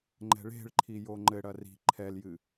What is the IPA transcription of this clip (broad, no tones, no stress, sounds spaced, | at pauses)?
ŋ͡ǃ ɛ̤ ɭ e̤ ɭ ǃʰ i j o ŋ͡ǃ ɘ ɽ ɐ r i̤ ǃʰ ɛ l j ɨ